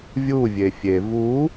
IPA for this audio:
vʲ u vʲ e fʲ e v u

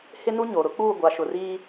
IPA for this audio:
h ɪ˦ n u˦ ɲ o˨ ɾ ʊ˦ k͡p uː˦˨ ɡʷ a˨ ʃ ʊ˨ r iː˦

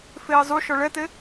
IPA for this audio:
f eː zˤ u ʃ ɔ ɭ ɛ t e

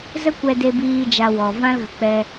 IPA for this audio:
z ə˦ kʷ ɛ˧ d e˧ b iː˧ d͡ʒ a˧ w ɔ˨ v ã˦ l ɣ ə˨ k͡p ɛ˧

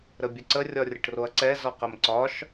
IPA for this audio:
ɾ ə bʲ ə ǀ ə rʲ ɒ rʲ ə ʈ r o ɐ̯ ǀ ɛ z ɒ q ə m ǀ ɒ ʃ

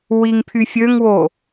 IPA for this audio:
w i ŋ pʰ y fʲ ø ŋ w o

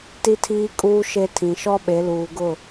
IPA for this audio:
t i˦ tʰ iː˦ kʼ uː˦ ʃ e˦ tʰ ĩ˨ ʃ ɔ˦ ɓ e˨˦ l uː˨ ɡ ʊ˦˨

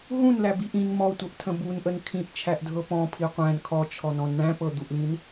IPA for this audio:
ɦ ũ n l æ b i ʔ ĩ n m ɔ tʷ ɤ ʔ tʰ ə̃ b u n ʔ ə n kʰ ĩ ʔ t͡ʃʰ æ ʔ dʱ ɤ p ɔ̃ pʰ i qʷ æ̃ n kʰ ɔ t͡ʃʰ ɔ n ɔ̃ n ɳ æ̃ p ɤ d̪ u ʔ l ĩ n

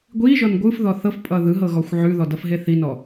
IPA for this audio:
ɡʷ i ʒ ɔ n ɡʷ ɯ f ð ɔ θ ɤ f pʼ ʌ ð ɯ ɦ ɤ ɣ ɔ xʷ ʕ ʉ ð ɔ d ʌ f ɦ e θ i n ɔ

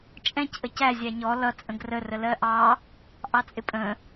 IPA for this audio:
t͡ʃʼ ɛ̃ c ʔ ə c æ zʲ æ ɲ ɔ l ʌ t͡sʼ ə̃ ɡ r ə r ə l ɜ ʔ ɑ | ʔ ɑ t͡sʼ ɪ pʼ ə̃

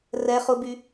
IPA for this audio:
r ɛ χ ʊ b y

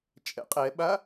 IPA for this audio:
t͡ʃʼ ɛ̰ qʼ ɛ ɓ a

